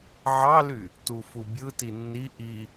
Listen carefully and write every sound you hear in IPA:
ʕ ɑ l y | t u f u bʲ ɯ t i nː i ʔ i

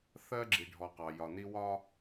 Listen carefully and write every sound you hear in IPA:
θ ɜ˦ ɡ͡ǁ i˨ ɖʱ ɔ˨ q ɑ˨ j ɒ˨ n i˦ w ɒ˦

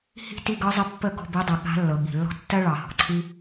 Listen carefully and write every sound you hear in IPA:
h i̤˥ t i˧˥˧ ɡ ɤ˧˥ zˤ ə˧˥ pː ə˥˨ ɡ ɔ̤˧˥˧ b i˧˥ dˤ ɤ˨ ɠ a̤˧˥ lː ɤ˨ ɠ i̤˨ lː ɔ̤˥ tː ɜ˥ ɭ ɑ˨ h ɔ̤˨ ǀʰ i˥

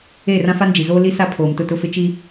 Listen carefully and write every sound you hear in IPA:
e˦˨ r ã˦ f a˦ n d͡ʒ i˨ z oː˦ l i˦ s a˦ pʰ oː˨ m t ʊ˦˨ t ʊ˦ f ɪ˦ t͡ʃ i˦

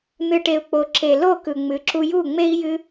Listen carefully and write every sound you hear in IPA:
n̪ ɨ˨ ʈ e˨ u̯ k͡p o˨ ǁ e˨ l o˦˨ k ɯ˨ ŋ͡m ɨ˨˦ ǁ u˧ j u˦˨ ŋ͡m e˦ i̯ j ɨ˧

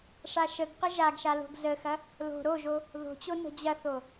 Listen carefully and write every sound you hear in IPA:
ʂ a ʃ ə ɡ q ə ʒ a ɡ ʃ a l o̤ ɡ z ə x ɐ | l o̤ ɾ o ʒ o | ð o̤ t͡ɕ o n ə̤ d͡ʑ ɐ θ o

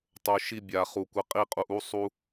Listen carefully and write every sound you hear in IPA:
tˤ o˨ ʃ i˧ bʲ a˨ χ u˨ kʷ ɘ˧ qʼ i˦ qʼ u˧ ʔ u˦ sˤ u˧

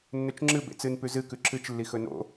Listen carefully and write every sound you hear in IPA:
nː ɵ t͡ʃ ŋ͡ǁ ɨ b ḛ t͡s ɨ n p ʉ z ɨ k ʉ ǁ ɨ t͡ʃ lː i x ɵ n o̰

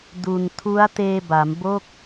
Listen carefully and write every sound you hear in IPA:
d u˧ n tʰ u˦˥ a̯ t eː˧ b a˩˦ m b o˥˩ k̚

